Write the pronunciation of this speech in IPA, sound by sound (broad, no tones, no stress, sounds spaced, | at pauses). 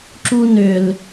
ǁ u n ʏ l